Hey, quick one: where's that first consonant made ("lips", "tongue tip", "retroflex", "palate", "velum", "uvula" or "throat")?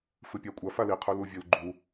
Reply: lips